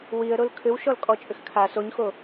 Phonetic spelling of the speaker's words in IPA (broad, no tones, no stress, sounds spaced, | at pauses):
w i ə̯ ɾ o l kʰ ʏ w ʃ ɔ l kʼ ɔ t͡ʃʼ ʏ x kʰ a s o ɲ x o